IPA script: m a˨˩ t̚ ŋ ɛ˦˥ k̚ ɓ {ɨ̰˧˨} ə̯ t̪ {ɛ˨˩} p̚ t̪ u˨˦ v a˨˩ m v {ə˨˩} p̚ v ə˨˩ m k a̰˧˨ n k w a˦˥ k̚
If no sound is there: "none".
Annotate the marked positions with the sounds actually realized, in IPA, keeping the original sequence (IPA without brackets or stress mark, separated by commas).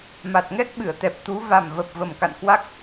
ɨ˧˩, ɛ˨˩, ə˨˩